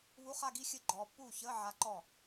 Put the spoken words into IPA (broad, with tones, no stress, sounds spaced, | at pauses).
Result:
β u˧˥˧ χ a˥˧ ɡ i˧˥ xʲ ɘ˧˥ ɡ͡ǃ ɔː˨ pː uː˥˩ ç əː˧˥˧ ʕ a˧˥ ǃ ɔ˥˩